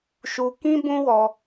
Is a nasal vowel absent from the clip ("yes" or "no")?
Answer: no